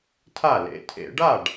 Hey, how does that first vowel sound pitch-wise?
falling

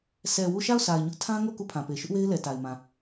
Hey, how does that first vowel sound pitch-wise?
low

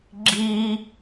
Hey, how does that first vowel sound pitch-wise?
high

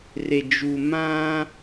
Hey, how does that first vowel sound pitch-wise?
low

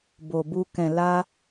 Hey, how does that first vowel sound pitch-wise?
low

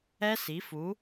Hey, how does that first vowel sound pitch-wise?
high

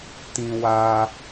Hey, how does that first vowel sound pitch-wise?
high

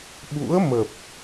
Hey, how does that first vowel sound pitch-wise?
rising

